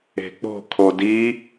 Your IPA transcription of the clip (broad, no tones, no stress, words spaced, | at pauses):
e̤k͡po̤ kʰodi